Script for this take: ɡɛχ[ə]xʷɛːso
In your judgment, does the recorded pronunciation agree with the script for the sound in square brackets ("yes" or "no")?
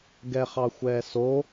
no